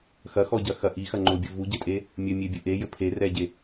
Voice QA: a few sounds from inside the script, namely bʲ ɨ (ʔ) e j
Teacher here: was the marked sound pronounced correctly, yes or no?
yes